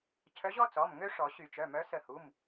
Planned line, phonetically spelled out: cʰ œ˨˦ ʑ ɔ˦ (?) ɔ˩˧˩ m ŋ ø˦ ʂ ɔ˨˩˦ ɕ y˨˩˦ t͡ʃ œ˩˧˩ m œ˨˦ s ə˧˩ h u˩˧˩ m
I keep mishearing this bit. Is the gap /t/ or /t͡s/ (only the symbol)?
t͡s